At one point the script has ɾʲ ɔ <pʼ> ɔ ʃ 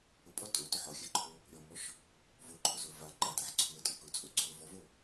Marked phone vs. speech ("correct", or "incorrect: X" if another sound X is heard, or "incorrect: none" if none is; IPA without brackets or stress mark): incorrect: m